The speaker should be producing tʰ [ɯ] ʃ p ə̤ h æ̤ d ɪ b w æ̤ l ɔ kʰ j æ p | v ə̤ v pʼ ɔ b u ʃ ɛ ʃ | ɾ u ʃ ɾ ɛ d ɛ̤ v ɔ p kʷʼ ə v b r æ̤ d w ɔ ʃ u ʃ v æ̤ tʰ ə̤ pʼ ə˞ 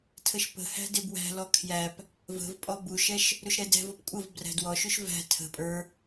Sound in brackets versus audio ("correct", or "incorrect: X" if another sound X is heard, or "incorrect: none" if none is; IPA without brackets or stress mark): incorrect: ə